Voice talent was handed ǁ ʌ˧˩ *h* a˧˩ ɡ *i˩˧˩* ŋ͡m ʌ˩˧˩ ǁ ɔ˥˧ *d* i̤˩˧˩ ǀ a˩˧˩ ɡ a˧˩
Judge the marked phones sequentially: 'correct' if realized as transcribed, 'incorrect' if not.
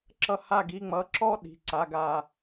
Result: correct, correct, incorrect: ɗ

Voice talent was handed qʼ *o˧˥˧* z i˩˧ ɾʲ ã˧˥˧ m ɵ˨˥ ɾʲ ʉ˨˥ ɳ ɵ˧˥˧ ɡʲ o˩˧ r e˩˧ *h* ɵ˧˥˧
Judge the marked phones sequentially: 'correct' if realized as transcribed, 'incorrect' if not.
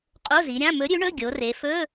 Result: correct, incorrect: f

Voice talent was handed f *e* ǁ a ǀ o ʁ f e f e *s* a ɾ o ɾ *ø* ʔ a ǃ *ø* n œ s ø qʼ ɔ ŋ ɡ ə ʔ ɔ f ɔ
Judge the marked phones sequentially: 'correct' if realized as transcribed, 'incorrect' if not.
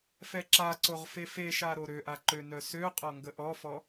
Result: incorrect: ɛ, incorrect: ʃ, correct, correct

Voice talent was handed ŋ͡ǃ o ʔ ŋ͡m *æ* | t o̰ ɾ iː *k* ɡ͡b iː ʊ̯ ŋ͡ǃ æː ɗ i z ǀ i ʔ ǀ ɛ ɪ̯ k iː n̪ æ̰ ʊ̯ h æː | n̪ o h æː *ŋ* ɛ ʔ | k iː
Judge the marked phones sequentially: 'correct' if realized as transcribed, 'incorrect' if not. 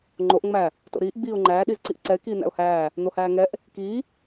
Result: correct, incorrect: ʔ, correct

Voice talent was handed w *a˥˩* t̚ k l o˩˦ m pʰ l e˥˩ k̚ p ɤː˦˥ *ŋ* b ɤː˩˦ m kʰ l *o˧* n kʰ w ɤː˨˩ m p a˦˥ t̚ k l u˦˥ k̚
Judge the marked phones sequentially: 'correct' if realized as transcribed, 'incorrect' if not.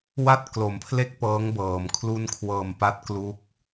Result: correct, correct, incorrect: u˧

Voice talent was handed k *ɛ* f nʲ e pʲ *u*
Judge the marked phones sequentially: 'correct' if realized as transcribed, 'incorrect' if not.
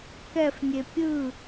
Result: correct, incorrect: ɯ

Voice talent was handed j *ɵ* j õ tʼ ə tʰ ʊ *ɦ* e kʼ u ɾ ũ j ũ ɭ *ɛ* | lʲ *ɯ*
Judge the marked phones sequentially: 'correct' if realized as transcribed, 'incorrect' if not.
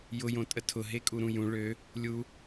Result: incorrect: ʊ, correct, incorrect: ø, incorrect: u

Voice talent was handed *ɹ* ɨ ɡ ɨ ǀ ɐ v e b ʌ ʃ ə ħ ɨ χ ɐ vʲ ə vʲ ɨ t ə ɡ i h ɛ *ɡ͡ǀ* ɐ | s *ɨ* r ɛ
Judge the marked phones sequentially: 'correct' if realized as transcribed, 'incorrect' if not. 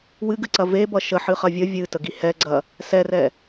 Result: incorrect: w, correct, incorrect: ɛ

